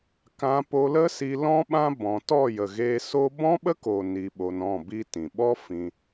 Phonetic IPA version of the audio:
kã˧po˧lə˦si˧ lɔ̃˦ɓã˦ bɔ̃˧ tɔ˦˨jə˨ɣeː˧so˦ bɔ̃˦ɓə˦koː˨ ni˧ɓo˧n ɔ̃˦˨ bi˦tĩ˨ ɓɔ˦ fĩ˧

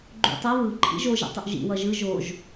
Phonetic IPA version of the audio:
ɡ͡ǃṵtˤʌ βɯ ǃʰḭʒo ʒɛ̰tˤuʔʒḭ wʌʒɯ ʒoʒ

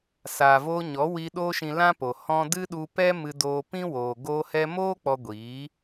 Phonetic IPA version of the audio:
saː˨voː˧ ɲɔ˨˦wi˧ ɗoː˦ʃĩ˧lã˦po˨ hɔ̃˧ dɨ˦ɗu˧pɛ˦ mɨ˧doː˧pĩ˦woː˨ ɡoː˧hɛ˧moː˦ k͡pɔ˧ɡʷiː˨˦

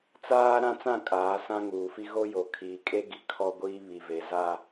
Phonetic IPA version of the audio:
t͡saː˦ ɾã˦t͡sã˦˨ kʼaː˨˦sã˦ŋuː˨fi˦ ɣo˦ jo˨ kʰiː˨kʼe˦ɡi˨ kʰɔ˦ɡʷiː˦ βi˨ve˨za˦

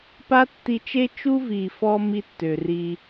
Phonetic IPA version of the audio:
pa˦tːi˧t͡ʃe˦ t͡ʃu˦vi˨fɔ˧ mi˦tːø˨ri˧

